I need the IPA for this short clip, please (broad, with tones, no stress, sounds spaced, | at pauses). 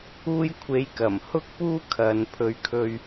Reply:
uː˧ j kʷʰ e˨˧ j k ɐ˨˩ m h ʊ˥ k̚ p uː˥ kʰ ɐ˨ n pʰ ɵ˨˧ ɥ kʰ ɵ˧ ɥ